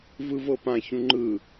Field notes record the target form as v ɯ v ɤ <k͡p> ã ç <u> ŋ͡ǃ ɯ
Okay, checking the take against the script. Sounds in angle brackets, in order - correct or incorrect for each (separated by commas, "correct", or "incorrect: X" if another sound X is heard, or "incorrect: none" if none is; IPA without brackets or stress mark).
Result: incorrect: p, incorrect: ũ